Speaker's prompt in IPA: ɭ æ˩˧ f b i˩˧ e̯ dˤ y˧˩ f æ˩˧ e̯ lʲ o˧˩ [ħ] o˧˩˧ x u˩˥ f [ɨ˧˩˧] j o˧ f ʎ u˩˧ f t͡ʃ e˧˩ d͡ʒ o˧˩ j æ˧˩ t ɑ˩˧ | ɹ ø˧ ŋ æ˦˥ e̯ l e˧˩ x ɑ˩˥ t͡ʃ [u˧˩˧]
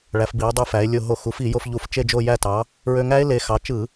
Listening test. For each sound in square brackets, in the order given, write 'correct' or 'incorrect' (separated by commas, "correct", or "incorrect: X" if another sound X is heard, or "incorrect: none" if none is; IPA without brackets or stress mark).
incorrect: ɦ, incorrect: i˧˩˧, incorrect: ɯ˧˩˧